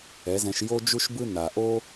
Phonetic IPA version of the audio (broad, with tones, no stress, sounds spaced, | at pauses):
ɛ˨˦ z ɛ̃˧ ʃ j o˧ d͡ʒ u˦ ʃ b ɯ˦ n a˨ ʔ o˦